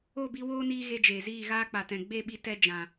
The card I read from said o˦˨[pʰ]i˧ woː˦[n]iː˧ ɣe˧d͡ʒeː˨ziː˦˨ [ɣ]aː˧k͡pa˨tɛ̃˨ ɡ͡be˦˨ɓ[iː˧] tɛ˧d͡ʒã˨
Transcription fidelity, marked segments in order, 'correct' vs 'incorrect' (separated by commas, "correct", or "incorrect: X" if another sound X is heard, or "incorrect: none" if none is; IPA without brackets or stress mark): incorrect: b, correct, correct, incorrect: i˧